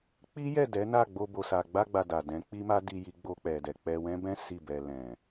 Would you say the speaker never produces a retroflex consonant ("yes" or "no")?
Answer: yes